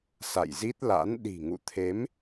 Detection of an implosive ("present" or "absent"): present